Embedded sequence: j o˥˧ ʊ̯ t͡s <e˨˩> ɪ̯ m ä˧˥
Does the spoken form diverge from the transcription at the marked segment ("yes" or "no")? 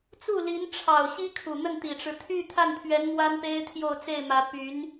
yes